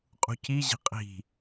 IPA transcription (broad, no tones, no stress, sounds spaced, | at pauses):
qʼ ṳ c i ʑ i̤ qʼ i̤